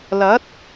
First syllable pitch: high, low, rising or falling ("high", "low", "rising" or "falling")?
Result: rising